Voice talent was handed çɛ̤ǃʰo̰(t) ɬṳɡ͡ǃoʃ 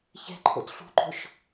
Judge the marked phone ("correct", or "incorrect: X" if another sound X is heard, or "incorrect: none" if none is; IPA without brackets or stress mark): correct